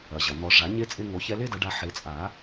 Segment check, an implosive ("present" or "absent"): absent